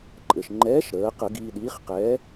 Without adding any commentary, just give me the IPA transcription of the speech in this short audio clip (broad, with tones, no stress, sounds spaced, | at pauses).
ǃʼ ɘ˩ ʃ ŋ͡ǃ ɛː˨˥ ʃ ɾ əː˩˧ q ə˧˩˧ ɡ iː˧ ɗ iː˨˥ χ q ɛː˨˥